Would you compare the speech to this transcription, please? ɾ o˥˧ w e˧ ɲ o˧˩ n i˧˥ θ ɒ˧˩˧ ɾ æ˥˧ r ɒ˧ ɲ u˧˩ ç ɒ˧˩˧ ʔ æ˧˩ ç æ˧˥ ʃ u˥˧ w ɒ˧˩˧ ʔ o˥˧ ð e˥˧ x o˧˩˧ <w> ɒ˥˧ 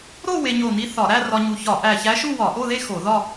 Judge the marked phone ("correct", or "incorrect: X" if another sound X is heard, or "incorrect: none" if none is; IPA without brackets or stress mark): incorrect: ð